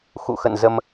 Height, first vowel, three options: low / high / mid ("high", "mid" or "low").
high